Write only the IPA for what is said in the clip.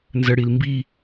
nzəɽil mbi

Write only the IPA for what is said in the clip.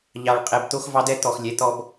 ʎɑ˨ɭqʼɛ˨b t̪o˦xvɑ˦dɛ˦ t̪ɔ˨xlʲɛ˨˦t̪ɔ˦b

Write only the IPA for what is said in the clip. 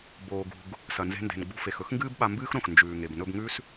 boː˩ɡṳ˩ɡ | sɐ˩nze̤˧nde̤˩n ɡ͡bṳ˧fe˩x ɵ˥xŋɡɨː˥bɓa˧ mbɨː˥xɾõ˩x nd͡ʒʉː˩ŋe˩b nɵ˧bŋʉ˥s

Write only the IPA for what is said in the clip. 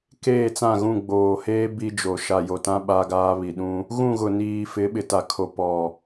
keː˦˨t͡sã˦˨ɣũ˦˨ ɡ͡boː˨heː˦ bi˦d͡ʒo˨ ʃa˨jo˨tã˦ ɓa˦ɡaː˦βi˨ ɗũ˦ | ɣũ˦˨ɣʊ˨niː˨ fɪ˨˦ɓɪ˨ta˨kʰo˨ pɔ˨

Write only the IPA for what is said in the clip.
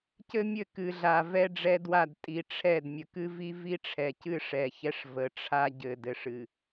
cɘ˦ mʲɘ˦˨kɨ˨ɮa˨ vɛ˦ ɖ͡ʐɛ˦dwa˦˨d tʼi˨ʈ͡ʂʰɛ˦˨dmʲə˨ kɨ˦vi˦vi˦ʈ͡ʂʰɛ˨ cɨ˦ʂɛ˨çɛ˦ʂvə˨˦ ʈ͡ʂʰa˦ɟɘ˨ dɘ˨ʂɨ˨

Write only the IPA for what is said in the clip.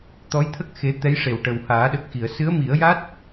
t̪ɔ˧˥jt̪ʰə˦˥k̚ xe˧˥ t̪ɛ˧˥j ʂe˨˩w ʈə˨˩whaː˨˩˦ɗə˨˩k̚ xi˨˩˨ə̯ sɨ˧˥ə̯mi˨˩˦ə̯ ja˦˥t̚

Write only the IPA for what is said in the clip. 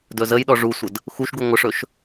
dɵzəjɗɔ ʐusʷəd | xuʃɡu ŋʷəʂɵʃ

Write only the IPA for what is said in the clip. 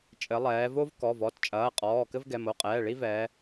t͡ʃʼɘ˩˧lˠɛː˩˧vo˦v kɔ˩˧˩vɔ˩˧˩tt͡ʃʼɐː˩˧˩qʼɔː˩˧˩ kɘ˦vɡɛ˩˧˩mo˩˧˩qʼɛː˩˧˩ ɭi˦vɛː˩˧

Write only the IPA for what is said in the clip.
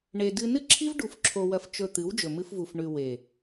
ɳe˧dɨ˦ nɨ˦ǁʰi˦v ɖu˧fǁʰo˧wɐ˧f t͡ʃɵ˧ t̪ɨ˨˦wd͡ʒɵ˨mɨ˧fvu˨f ɳʉ˨ we˨

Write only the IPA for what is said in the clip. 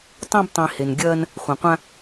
tˤẽ˥btˤĩ˧ he˧nɡʲɐː˥n | χʷã˧qʷã˥

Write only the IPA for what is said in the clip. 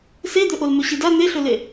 sed̪ɵ ʔolmɵɕida n̪eɬɵle

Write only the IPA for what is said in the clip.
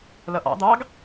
lʌʔɑ̰d̪ɑːɡ

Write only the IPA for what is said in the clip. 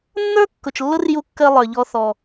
nːə˞˦ kːʊ˨t͡ʃlːʊ˦rju˧ kːɜ˧ lˠə˞˨ʎɔ˧ θɔ˧

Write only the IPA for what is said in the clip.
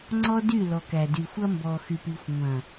ŋ͡ǀɔ˦dy˦˨ lɔ˨kæ˨dy˨ xʷɐ˦mbɔ˨xy˨pi˨xʷ ŋʷɐ̃˨

